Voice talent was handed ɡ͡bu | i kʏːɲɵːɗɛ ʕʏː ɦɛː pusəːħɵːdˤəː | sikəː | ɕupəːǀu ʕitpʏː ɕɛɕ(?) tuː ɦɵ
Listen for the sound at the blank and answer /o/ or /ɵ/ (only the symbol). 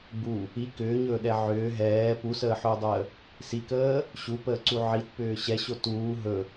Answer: o